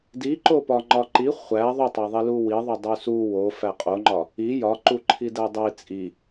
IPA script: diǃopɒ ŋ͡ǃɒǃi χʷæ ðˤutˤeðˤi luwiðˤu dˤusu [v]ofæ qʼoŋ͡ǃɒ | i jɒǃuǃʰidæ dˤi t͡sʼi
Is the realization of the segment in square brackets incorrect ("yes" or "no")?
yes